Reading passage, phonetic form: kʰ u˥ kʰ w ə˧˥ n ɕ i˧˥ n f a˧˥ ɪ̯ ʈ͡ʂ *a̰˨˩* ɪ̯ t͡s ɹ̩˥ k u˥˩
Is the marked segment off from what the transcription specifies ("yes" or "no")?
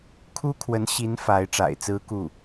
no